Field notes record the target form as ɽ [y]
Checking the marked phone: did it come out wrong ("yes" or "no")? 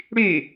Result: no